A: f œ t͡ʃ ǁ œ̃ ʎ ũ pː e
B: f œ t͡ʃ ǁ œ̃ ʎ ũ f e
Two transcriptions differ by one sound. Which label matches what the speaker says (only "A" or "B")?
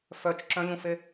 B